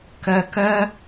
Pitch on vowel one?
low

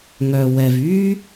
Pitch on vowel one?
low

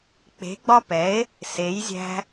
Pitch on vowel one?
rising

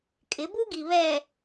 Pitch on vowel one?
rising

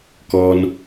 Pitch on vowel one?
low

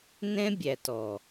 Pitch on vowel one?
high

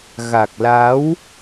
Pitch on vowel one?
low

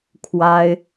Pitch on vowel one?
high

